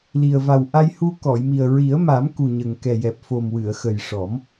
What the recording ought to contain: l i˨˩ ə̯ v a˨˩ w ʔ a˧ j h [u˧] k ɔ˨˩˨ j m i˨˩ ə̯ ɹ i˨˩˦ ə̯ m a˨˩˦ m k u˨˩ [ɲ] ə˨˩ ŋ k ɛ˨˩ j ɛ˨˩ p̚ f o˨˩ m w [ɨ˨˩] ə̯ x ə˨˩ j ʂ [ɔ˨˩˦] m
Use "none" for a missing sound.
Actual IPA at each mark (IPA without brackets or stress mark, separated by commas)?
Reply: u˧, ɲ, ɨ˨˩˨, ɔ˨˩˦